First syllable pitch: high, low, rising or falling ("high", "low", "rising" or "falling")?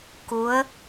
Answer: rising